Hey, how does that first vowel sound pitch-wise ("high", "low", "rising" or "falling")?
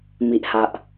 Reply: low